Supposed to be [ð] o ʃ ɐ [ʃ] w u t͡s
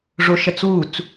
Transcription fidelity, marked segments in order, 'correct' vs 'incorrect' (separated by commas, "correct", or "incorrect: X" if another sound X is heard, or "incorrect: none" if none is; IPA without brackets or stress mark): incorrect: ʐ, incorrect: t͡s